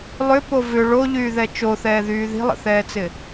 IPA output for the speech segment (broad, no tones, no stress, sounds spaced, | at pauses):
lˠ ʏ p o v ʏ ɭ o ʎ yː ð ɛ t͡ʃ o θ ɛː ð yː ð i̤ lˠ ə̰ θ ɛː t͡s ɪ